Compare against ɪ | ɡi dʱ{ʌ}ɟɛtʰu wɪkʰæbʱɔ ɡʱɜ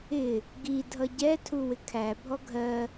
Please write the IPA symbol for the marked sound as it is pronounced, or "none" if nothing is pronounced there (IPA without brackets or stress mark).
ʌ